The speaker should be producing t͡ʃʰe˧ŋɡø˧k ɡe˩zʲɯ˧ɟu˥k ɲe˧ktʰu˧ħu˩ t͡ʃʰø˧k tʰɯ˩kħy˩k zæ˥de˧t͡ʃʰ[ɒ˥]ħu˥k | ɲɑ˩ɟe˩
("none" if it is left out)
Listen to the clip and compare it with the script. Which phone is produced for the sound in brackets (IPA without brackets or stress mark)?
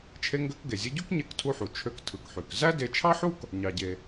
ɑ˥